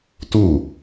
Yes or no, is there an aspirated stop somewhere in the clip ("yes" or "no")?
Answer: no